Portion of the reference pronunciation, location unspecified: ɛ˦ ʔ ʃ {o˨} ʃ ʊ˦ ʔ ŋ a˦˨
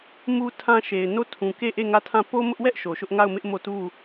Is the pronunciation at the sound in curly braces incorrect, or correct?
correct